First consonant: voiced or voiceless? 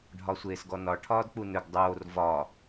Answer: voiced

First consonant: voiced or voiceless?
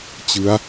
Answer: voiceless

